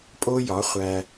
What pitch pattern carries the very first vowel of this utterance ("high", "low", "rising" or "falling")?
high